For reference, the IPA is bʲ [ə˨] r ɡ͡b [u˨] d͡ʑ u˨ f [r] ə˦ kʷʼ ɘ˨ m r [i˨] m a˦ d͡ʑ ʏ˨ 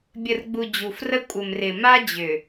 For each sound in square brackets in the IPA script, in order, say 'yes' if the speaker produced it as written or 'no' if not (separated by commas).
yes, yes, yes, no